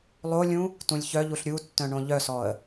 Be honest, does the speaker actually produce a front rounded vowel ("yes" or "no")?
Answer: yes